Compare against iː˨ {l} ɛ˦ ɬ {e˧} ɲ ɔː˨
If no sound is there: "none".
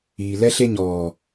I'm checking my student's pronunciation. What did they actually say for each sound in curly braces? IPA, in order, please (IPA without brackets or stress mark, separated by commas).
l, e˧